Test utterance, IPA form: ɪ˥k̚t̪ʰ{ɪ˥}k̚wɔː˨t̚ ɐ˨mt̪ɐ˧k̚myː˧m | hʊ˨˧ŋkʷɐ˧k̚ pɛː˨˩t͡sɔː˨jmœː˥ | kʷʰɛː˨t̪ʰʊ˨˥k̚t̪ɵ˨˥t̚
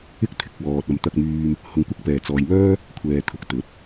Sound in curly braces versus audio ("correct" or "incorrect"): incorrect